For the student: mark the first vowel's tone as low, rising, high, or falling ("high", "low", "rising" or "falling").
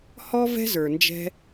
high